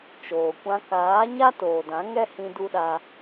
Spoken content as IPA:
t͡ʃ oː˨ kʷ ã˧ k aː˨˦ ɲ a˦ t oː˨ d ã˨˦ ŋ ɛ˦ h ĩ˧ d u˦ ɗ a˧

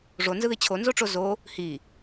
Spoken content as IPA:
ʐ o n z ɯ ð i t͡ɕʰ o n z o ʈ͡ʂ o z o | h i

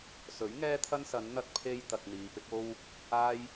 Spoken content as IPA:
s ɵ˨˥ ɥ ŋ ɛː˥ t̪ʰ ɐ˥ n s ɐ˨˧ n n̪ ɐ˧ t̚ pʰ e˧ j t̪ ɐ˧ k̚ n̪ iː˨˧ p ɪ˨˥ k̚ o˥ w | aː˥ j

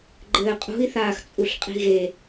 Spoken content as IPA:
ɡ͡ǃ ɘː qʼ ṳ i̯ θ aː x t͡sʼ u ɬ qʼ i̤ ɣ e

